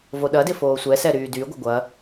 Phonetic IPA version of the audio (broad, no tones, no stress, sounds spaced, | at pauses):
v o ɗ ɐ d ɪ f oː sʷ ɛ s ɛ ɾ yː d y ɡʷ ə ɡʷ ɐ